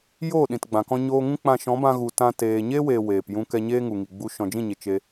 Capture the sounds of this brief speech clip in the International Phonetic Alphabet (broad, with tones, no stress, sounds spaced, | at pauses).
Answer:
j oː˦˨ ɗ ĩ˨ t ɡ͡b ã˨ k ɔ̃˧ ɲ oː˧ ŋ ũ˦ k͡p ã˧ ʃ ɔ̃˨˦ b ã˧ ɣ u˨ t ã˧ t eː˨ ɲ e˦ w e˨ w eː˨ p j ũ˧ k ɛ˧ ɲ eː˦ ŋ u˨ ŋ i˨ ɡ͡b u˧ ʃ ɔ̃˨ d͡ʒ ĩ˦˨ ɲ e˨ t͡ʃ e˧